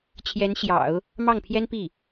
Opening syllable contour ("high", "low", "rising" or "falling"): rising